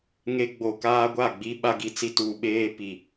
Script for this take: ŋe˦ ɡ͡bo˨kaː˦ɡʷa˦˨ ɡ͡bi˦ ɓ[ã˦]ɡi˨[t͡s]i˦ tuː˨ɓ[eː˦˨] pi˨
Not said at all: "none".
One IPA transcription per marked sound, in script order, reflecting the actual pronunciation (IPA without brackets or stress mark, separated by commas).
a˦, t͡s, eː˦